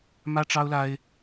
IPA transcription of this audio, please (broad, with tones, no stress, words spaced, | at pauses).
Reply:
mä˥ʈ͡ʂɑ˥ʊ̯la˥ɪ̯